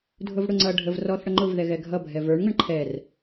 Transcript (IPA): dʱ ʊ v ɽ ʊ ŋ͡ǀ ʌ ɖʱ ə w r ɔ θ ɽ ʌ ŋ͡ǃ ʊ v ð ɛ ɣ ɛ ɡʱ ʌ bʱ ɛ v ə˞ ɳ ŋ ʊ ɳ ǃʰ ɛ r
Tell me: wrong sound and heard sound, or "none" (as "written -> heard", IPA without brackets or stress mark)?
w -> v